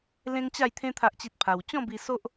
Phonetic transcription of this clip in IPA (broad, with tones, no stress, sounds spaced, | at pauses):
l ẽ˦ ŋ t͡ɕ a˥˧ j t̪ʰ ẽ˦ t̪ʰ a˦ ʔ t͡ɕ i˦ t̚ pʰ a˧ w t͡ɕ ɔ̃˥˧ b i˧ s o˦ ʔ